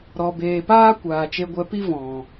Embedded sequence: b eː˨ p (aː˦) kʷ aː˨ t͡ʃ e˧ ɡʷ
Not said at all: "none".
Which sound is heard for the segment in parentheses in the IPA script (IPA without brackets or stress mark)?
aː˦